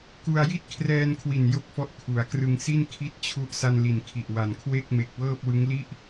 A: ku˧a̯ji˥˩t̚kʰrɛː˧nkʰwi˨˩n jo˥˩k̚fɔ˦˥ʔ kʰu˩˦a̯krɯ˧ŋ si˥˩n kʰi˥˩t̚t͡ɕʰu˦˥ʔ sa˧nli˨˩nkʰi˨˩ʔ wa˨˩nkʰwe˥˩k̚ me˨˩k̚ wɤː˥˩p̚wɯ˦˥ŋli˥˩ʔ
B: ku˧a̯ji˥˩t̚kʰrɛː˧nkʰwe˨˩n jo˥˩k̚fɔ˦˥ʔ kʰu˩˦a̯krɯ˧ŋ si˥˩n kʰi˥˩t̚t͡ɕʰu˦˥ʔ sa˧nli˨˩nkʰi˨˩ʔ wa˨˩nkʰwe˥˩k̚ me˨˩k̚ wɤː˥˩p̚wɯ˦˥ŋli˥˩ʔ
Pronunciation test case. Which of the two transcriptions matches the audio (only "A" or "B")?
A